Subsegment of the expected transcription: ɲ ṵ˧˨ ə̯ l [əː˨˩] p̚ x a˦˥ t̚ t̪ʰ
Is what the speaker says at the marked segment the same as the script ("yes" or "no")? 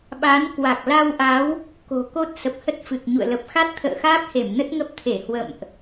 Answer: no